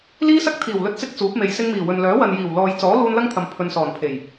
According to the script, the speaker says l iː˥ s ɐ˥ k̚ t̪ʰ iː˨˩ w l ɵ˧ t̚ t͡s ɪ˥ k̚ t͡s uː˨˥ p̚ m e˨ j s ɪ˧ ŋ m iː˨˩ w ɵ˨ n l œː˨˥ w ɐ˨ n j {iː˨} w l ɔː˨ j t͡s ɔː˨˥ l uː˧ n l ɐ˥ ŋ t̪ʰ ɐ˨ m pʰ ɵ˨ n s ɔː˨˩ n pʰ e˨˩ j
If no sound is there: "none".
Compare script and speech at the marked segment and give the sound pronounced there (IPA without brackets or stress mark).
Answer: iː˨˩